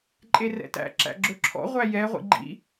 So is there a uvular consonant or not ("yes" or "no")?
yes